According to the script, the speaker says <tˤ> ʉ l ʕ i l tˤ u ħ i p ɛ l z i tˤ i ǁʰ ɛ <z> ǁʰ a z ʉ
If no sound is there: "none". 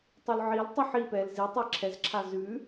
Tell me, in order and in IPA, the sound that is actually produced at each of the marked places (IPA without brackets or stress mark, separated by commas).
tˤ, z